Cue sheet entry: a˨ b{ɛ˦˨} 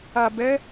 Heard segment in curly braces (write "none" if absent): ɛ˨˦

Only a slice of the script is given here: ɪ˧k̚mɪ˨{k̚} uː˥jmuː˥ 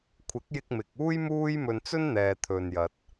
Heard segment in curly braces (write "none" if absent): k̚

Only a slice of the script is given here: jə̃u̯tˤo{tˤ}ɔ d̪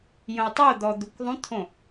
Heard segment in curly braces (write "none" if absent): d̪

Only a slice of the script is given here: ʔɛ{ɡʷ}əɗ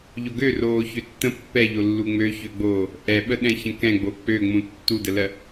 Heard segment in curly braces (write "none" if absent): ɓ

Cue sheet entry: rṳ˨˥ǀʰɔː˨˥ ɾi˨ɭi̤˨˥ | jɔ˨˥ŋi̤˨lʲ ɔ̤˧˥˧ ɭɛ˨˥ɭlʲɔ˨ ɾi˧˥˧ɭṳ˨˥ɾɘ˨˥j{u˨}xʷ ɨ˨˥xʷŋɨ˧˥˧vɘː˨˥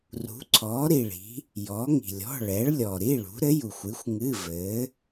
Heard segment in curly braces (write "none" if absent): u˨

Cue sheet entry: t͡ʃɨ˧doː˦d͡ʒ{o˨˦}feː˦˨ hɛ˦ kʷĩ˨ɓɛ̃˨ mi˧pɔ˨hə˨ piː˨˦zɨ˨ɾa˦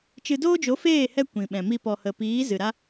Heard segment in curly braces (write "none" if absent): o˨˦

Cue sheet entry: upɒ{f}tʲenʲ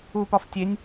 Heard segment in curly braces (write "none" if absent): f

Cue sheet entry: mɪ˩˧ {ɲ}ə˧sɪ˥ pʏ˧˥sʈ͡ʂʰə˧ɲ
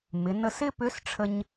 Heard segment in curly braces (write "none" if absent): n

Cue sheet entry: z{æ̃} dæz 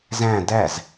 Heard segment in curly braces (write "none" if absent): æ̃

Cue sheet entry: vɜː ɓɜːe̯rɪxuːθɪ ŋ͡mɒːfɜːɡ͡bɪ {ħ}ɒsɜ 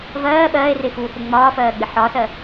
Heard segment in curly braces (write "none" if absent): ħ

